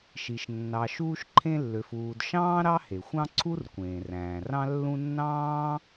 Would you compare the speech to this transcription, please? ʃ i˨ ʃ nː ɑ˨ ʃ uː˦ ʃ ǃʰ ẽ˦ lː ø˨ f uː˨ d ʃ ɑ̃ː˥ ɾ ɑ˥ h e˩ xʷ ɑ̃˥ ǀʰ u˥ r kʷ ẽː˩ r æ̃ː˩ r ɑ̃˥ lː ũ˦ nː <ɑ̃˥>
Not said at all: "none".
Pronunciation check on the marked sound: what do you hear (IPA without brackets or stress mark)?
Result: ɑ̃ː˥